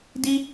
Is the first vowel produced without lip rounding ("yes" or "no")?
yes